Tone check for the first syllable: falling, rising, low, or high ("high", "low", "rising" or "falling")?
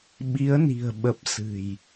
rising